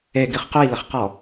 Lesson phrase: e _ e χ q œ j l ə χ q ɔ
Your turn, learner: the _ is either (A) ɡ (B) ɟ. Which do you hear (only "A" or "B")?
A